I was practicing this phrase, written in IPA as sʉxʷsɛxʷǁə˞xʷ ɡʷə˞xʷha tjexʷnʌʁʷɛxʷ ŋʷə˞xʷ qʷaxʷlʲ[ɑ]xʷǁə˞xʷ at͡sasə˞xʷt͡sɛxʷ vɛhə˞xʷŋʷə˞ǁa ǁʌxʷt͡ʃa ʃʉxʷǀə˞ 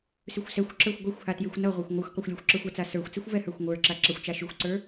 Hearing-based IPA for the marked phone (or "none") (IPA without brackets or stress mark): ʌ